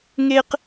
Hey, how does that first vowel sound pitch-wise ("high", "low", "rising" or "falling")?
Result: high